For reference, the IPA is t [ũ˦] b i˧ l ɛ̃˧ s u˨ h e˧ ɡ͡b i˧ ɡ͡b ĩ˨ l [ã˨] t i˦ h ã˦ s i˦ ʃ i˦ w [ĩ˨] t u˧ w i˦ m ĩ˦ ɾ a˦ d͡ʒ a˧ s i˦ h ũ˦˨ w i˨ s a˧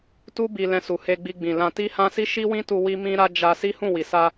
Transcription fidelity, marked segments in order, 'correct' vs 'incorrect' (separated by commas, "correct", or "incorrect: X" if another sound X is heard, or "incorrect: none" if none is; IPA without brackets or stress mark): incorrect: u˦, incorrect: ã˧, incorrect: ĩ˦